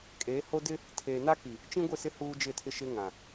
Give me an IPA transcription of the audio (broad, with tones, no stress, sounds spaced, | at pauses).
kʼ eː˨˦ h o˦ d ɪ˦ | tʰ eː˨ n a˦ k i˨ | t͡ʃ ĩ˦ ɡʷ ɪ˦˨ s ɪ˦ h uː˦ d͡ʒ ɪ˦˨ tʰ ɪ˦ ʃ ɪ˦ ŋ ã˨